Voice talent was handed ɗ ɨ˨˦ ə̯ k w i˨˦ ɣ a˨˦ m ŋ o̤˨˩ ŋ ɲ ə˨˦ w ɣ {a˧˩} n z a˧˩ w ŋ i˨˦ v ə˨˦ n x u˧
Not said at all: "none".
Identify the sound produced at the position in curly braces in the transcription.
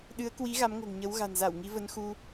a̤˨˩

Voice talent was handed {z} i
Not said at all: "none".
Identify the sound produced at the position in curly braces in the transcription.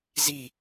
z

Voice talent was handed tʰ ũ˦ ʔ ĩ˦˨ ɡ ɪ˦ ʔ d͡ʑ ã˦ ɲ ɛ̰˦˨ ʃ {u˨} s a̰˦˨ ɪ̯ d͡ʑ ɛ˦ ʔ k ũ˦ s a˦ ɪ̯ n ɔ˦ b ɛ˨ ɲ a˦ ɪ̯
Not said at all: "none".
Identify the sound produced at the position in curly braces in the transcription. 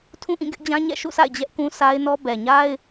ṵ˦˨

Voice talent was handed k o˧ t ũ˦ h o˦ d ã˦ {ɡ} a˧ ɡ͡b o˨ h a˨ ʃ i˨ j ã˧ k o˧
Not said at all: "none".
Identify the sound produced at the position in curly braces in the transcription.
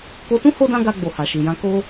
ɡ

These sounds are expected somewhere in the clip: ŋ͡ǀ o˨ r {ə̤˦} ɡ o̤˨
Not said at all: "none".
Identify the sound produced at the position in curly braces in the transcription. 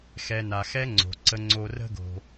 ə̤˦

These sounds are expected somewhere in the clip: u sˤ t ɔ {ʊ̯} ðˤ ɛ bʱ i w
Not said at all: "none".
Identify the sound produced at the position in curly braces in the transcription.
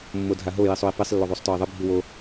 ɪ̯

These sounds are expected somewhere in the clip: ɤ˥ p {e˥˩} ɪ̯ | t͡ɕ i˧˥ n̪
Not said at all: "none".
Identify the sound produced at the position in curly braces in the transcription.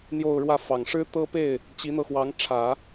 e˥˩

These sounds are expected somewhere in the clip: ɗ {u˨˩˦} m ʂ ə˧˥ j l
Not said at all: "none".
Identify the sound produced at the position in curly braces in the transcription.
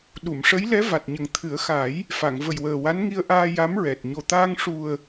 u˨˩˨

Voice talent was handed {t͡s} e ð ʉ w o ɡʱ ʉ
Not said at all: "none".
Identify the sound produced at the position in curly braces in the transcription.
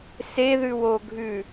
s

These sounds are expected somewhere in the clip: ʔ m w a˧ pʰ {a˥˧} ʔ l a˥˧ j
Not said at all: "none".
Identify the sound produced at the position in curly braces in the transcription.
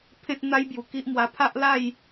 a˦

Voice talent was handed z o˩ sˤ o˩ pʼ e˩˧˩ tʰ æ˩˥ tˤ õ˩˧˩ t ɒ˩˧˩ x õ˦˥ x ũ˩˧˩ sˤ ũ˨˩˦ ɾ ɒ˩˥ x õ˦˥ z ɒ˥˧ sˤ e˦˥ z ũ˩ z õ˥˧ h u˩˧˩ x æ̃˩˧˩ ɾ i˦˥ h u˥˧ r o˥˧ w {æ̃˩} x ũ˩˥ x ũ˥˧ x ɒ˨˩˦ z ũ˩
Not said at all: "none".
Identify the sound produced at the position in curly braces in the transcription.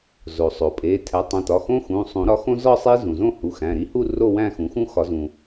æ̃˥˧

